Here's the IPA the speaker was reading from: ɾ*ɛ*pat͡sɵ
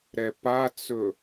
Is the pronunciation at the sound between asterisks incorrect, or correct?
correct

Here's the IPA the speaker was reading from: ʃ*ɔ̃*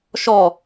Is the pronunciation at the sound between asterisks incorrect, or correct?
incorrect: ɔ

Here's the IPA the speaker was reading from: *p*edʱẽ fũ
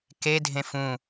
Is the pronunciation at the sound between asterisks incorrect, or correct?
incorrect: k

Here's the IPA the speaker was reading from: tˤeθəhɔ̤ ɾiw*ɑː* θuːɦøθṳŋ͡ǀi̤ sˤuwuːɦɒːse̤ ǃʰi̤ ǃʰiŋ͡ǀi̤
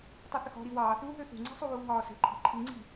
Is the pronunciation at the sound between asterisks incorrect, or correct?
correct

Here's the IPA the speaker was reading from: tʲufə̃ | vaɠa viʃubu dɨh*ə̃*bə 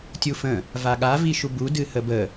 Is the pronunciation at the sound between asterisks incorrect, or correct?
incorrect: ə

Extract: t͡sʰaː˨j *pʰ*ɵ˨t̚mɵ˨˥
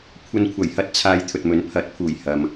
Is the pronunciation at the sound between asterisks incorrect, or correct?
incorrect: t̪ʰ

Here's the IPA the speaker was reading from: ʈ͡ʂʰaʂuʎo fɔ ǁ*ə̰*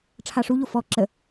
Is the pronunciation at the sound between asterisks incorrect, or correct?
incorrect: ə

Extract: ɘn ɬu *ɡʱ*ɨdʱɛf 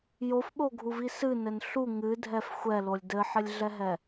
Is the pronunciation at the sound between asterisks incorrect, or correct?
incorrect: ŋ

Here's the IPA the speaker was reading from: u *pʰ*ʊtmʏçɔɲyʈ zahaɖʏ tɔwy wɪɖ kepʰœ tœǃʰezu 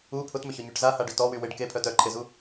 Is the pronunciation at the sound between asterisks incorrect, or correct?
correct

